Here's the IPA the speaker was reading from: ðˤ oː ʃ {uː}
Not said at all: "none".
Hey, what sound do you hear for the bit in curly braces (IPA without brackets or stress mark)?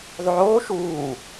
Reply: uː